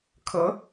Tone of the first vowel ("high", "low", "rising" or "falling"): rising